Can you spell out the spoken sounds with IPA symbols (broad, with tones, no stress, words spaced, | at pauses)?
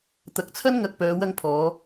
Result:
t̪ɐ˨˥k̚t͡sʰɐ˥n ŋɐ˧k̚pœː˨˧ wɐ˧ŋpʰɔː˨˧